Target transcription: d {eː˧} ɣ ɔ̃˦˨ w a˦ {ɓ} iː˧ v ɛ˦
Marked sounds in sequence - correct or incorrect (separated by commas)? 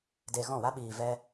incorrect, correct